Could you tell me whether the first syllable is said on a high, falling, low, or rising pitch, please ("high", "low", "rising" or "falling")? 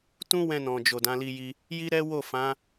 high